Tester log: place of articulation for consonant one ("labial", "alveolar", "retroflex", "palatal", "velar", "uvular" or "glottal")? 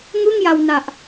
velar